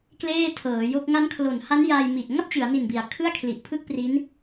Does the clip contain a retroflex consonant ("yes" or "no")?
no